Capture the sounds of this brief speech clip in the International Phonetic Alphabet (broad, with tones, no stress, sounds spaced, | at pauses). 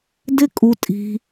d ɪ˦ kʼ u˧ tʼ i̤˧